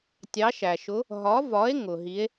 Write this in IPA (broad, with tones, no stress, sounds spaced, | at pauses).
tʲ ɑ˨˥ ʃ æ˩ ʃ ʊ˨˥ | ɦ ɒ˨˥ v ɒ˨˥ e̯ ŋ ʊ˩ ɦ i˨˥ e̯